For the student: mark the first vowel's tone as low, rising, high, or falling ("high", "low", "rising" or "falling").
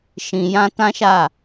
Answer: low